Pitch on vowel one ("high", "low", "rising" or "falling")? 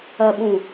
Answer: low